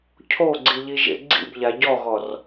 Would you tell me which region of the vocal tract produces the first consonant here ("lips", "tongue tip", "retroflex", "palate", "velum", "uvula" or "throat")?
palate